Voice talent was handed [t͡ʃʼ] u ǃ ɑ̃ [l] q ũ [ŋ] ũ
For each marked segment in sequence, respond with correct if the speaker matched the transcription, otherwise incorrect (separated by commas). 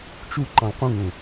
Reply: incorrect, correct, correct